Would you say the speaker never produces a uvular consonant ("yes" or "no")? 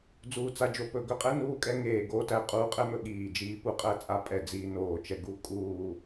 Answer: no